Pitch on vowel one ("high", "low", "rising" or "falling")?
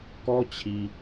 high